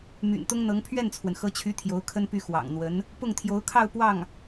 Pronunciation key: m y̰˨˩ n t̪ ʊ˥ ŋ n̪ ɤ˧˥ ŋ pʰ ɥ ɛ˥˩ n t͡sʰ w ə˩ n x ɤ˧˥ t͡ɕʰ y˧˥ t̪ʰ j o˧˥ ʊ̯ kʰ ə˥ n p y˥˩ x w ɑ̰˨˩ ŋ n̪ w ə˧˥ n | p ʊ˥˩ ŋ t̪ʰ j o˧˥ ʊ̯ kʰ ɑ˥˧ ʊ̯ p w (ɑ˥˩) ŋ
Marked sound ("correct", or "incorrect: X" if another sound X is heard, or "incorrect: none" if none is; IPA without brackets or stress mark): correct